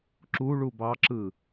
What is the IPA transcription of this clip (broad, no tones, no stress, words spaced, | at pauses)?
ǁuɭu bɑǁɯ